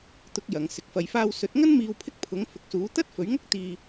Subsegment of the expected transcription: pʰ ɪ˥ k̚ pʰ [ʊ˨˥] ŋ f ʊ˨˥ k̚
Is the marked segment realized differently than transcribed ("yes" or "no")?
no